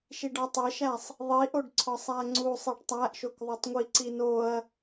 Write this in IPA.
ʃ i ɖ ɒ tˤ e ʃ æ sˤ | ðˤ i ʔ o ɖ ǀʰ ɒ sˤ æ ŋ͡ǀ u sˤ e ɖ tˤ æ ʔ ʃ o k ðˤ o tˤ ŋʷ i ǀ i n o ɐ̯

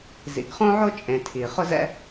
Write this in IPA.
z ḭ˩ ɡ χ õ˥ ʕ o˥ t͡ʃʼ ẽ˩ tʰ i˩ χ ʊ˥ z ɛ̰˥

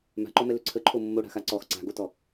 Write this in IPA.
m a̤ ǃ ɔ m ɛ l ø ǀʰ ə ǃʰ o mː o ɽ a̤ x a ǀ ɔ x ǀ a̤ ɡ o t ɔ

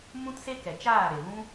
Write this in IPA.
m ũ˦ t s e˦ k ɛ˨ t͡ʃ aː˦˨ ɾ e˨ v ũ˦

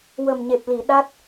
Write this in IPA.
w ə˨˩ m ɲ e˨˩ p̚ l i˨˩˨ ɗ a˦˥ t̚

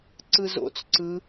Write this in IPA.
ǀ ɯ z o̰ t͡s ǀ ɯ

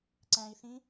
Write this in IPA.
ǀ æ̃ i̯ θ ĩ

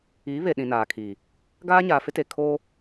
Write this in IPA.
i˨˦ β e˨ ɗ ĩ˨ n aː˨ kʰ iː˨ | ɡ aː˦ ɲ aː˨ f ɪ˦ t e˨ kʰ oː˦

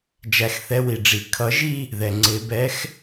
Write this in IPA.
d͡ʒ æ˨˩˦ x θ ɛ˨˦ w i˩ ɖ͡ʐ i˩ kʰ ʌ˨˩˦ ʒ i˥˧ | ð ɛ˩ ŋ͡ǀ ɪ˨˩˦ b ɛ˨˦ x

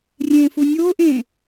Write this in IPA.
rʲ ẽː f u nʲ oː ʔ ẽː

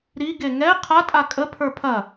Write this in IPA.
ɾ i ɡ e ŋ ɛ qʰ a tʼ a kʼ ə pʰ ə˞ pʰ ɐ

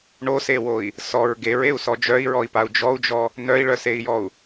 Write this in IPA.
ɳ o s e w o i̯ | s ɔ ɹ ɡ e ɹ e u̯ s ɔ d͡ʒ œ i̯ ɹ ɔ i̯ p a u̯ d͡ʒ ɔ u̯ d͡ʒ ɔ | n œ i̯ ɭ œ s e i̯ j ɔ u̯

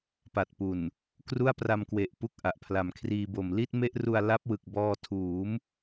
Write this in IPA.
p a˨˩ t̚ p u˨˩ n | k r u˥˩ a̯ p r a˧ m k w e˨˩ ʔ p u˥˩ k̚ ʔ a˨˩ ʔ pʰ l a˨˩ m kʰ r iː˧ b o˨˩ m l i˥˩ t̚ m e˥˩ ʔ r u˧ a̯ l a˦˥ p̚ w ɯ˨˩ k̚ b ɔː˧ tʰ uː˩˦ m

